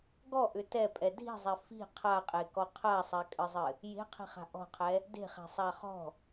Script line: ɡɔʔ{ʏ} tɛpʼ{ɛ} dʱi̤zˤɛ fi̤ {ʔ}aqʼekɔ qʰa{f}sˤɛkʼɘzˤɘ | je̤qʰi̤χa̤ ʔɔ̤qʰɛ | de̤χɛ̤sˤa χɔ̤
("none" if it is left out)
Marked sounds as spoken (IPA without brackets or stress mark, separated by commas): ʏ, ɛ, qʰ, none